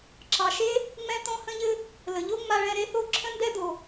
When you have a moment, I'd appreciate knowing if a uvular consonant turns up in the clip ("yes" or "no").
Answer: no